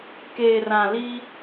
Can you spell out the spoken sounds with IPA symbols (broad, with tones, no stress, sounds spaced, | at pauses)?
k eː˨ r ã˨ l i˦